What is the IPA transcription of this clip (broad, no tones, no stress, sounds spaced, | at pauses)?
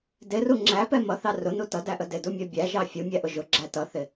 d ɪ r u ŋ͡ǁ æ p ɛ m ʌ θ ɑ r ʊ n u t ʌ d æ ʔ ə d ɪ d u mʲ ɜ bʲ æ ʒ ɑ fʲ u mʲ æ ʔ ʊ ʒ ʊ ɡ͡ǁ æ t ʌ θ ɪ